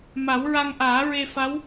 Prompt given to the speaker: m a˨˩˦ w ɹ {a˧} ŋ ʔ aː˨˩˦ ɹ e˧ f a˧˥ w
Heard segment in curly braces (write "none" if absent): a˧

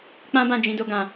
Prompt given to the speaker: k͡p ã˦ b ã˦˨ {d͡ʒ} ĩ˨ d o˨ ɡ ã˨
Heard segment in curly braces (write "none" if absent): d͡ʒ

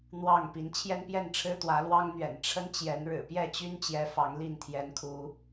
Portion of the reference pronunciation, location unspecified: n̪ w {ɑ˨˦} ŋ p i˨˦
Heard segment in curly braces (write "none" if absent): ɑ˥˨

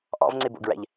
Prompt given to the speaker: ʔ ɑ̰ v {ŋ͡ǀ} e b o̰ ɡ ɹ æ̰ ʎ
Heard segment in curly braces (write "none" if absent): ŋ͡ǀ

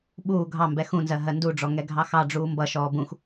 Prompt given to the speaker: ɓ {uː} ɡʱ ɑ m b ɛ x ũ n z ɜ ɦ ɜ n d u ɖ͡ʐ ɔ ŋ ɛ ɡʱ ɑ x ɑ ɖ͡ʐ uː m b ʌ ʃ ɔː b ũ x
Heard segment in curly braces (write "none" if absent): uː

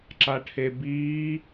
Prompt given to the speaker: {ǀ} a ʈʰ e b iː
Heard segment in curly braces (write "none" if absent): ǁ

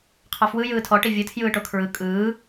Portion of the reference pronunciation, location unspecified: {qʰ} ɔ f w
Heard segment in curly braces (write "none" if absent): qʰ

